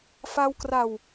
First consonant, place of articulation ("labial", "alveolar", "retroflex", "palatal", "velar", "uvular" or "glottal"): labial